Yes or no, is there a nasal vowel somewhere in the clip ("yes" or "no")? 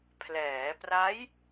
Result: no